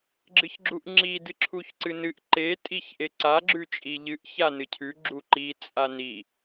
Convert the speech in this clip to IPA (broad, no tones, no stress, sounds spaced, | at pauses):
ɡ͡ǁ ɨ ç ɡ͡ǁ u ʔ ŋ͡ǁ i d ɨ ǁʰ u ç ǀ ɨ n ɨ ʔ ǃ e tʼ i ç ʔ e ǀ a ɡ͡ǁ ʉ t͡ʃʼ i ʎ ɨ ʔ ç a n ɨ cʰ ʉ ɡ͡ǁ u ǃ i t͡sʼ a n i